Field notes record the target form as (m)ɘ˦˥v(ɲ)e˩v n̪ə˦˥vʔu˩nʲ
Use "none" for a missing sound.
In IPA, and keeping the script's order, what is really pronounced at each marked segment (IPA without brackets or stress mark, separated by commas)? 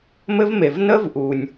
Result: m, m